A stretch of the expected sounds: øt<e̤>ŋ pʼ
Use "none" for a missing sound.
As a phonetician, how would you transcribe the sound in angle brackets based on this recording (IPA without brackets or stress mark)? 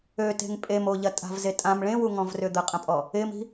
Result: e̤